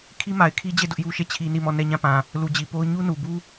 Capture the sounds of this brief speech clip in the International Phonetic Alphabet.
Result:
kʰ i˦ m a˨ ɪ̯ kʰ i˦ d͡ʑ e˦˨ d ʊ˦ ʔ j u˦ ʃ e˦˨ t͡ɕʰ i˦ n i˦˨ m ɔ˦˨ n ɛ˦˨ ɲ ã˦˨ p ã˨ | l u˨ d͡ʑ i˨ p o˦ ʊ̯ ɲ u˦ n u˨ b u˦

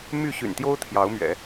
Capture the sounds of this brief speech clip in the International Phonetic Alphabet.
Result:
m y˥˩ ɕ y̰˨˩ n t̪ j o˥ ʊ̯ t̪ʰ j ɑ˧˥ ʊ̯ m ɥ ɛ̰˨˩˦

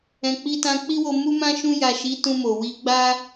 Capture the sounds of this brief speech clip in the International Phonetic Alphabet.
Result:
ɛ̃˨ k͡p i˧ t ã˧ k͡p i˦ w o˧ m u˦ m ã˦ ʃ ũ˧ j a˨ ʃ i˨˦ t ũ˧ m o˨ w i˧ ɡ͡b a˦

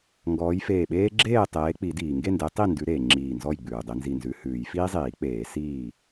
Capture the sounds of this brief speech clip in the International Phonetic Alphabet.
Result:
ŋ ɡ ɔː˨˦ j f eː˧˩ ɓ eː˦ ɡ͡ǁ eː˥˨ tˤ eː˨˦ k͡p i˨˩˦ d iː˩ ŋ ɡ e˥˨ n d e˨˦ tˤ i˥˨ n d ʉ˨˦ ɾ eː˩ ŋ͡ǁ iː˧˩ n z ɔ˥˨ j ɡ͡b ʉː˩ dˤ e˨˦ n z i˧˩ n z ʉ˨˦ h ʉː˨˩˦ j f iː˦ zˤ iː˨˩˦ k͡p eː˨˩˦ s iː˧˩

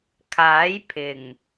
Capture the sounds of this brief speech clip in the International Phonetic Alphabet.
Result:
kʰ aː˨˥ j pʰ ɪ˨˩ ŋ

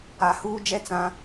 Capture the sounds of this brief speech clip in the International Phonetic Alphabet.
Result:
a˨ h uː˦ d͡ʒ ɛ˦ t͡s ã˦

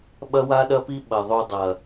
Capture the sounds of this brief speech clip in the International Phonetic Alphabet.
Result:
ɓ ɐ˦ w a˦ ɗ ɐ˦ p i˦ ɓ ɐ˨ ðˤ u˧ dˤ ɐ˨

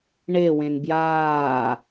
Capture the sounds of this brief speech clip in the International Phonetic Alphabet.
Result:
ɳ e w ẽ n b j aː

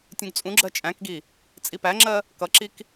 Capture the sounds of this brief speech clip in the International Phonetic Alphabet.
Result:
tʲ ũ ɡ t͡sʼ ũ ɡ͡ǁ ɜ t͡ʃʼ æ̃ k ɡ i | t͡sʼ i p æ ŋ͡ǁ ɜ | k ʌ ǁ i k

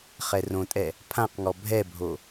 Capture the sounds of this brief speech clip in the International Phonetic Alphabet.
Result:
χ ɛ r õ tʼ ɛ | pʰ ã q ŋ ɔ bʱ ɛ bʱ o

